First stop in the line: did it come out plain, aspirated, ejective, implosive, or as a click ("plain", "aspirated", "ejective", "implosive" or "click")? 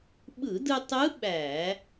implosive